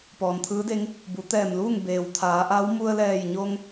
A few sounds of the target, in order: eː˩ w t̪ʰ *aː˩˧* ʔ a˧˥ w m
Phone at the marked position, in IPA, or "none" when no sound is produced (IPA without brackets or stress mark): aː˩˧